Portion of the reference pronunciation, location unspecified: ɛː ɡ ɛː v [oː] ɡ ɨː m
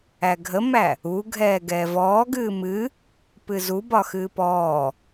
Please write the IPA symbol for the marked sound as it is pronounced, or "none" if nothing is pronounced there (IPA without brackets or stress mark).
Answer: ɔː